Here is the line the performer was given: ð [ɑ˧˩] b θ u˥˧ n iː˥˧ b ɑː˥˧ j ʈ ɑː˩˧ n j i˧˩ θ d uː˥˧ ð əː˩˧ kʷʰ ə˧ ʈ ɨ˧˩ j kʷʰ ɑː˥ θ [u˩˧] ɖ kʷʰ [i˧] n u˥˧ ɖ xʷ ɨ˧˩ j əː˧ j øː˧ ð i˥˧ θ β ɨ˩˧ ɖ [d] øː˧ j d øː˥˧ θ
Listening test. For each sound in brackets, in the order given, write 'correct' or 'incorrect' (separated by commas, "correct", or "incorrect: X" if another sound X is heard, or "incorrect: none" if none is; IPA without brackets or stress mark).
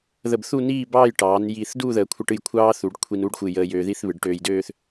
incorrect: ə˧˩, correct, correct, incorrect: ʈ